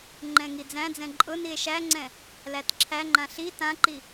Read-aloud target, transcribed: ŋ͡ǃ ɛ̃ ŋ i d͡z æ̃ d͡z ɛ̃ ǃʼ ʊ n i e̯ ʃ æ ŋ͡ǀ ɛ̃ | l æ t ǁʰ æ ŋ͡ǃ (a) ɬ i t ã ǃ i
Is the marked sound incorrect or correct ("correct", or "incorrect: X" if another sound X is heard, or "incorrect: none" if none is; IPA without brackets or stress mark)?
incorrect: ã